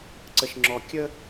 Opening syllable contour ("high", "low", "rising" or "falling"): high